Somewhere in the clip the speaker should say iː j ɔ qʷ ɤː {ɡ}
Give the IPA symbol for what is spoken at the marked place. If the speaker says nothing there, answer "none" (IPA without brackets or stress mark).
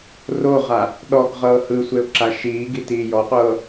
none